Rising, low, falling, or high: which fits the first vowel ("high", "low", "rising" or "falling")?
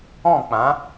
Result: falling